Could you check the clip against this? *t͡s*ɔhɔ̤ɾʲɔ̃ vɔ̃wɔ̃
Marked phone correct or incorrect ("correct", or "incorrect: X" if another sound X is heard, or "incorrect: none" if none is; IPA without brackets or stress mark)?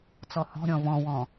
correct